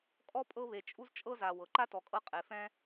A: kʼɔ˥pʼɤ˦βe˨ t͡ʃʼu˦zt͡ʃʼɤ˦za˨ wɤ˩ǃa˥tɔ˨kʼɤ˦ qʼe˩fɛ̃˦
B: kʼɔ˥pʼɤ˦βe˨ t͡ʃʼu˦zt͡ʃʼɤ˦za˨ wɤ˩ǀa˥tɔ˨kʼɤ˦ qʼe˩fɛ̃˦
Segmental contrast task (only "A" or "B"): A